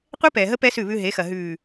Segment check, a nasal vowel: absent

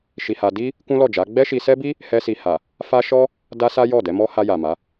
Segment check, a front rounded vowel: absent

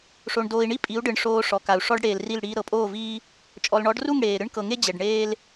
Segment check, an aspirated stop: absent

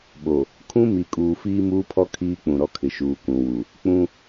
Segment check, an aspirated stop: present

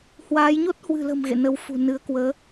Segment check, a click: absent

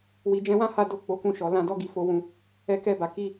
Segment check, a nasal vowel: present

